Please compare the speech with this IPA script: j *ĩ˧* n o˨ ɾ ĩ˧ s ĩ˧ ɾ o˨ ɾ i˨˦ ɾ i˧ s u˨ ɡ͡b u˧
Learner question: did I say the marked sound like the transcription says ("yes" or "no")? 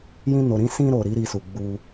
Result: yes